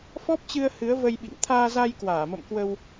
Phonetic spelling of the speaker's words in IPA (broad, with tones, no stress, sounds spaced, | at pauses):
f ɔ˦˥ p̚ t͡ɕ ɨ˧ ə̯ h ɨ˨˦ ə̯ v ə˧ j ɓ ḭ˧˨ ŋ t̪ʰ aː˧ z a˧ j k w aː˧˩ m ə̰˧˨ m k w ə˧ w